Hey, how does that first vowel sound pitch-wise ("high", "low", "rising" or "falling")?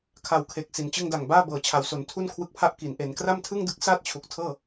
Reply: low